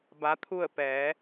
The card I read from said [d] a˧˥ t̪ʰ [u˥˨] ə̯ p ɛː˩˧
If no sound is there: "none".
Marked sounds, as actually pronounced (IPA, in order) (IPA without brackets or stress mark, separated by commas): b, u˥˨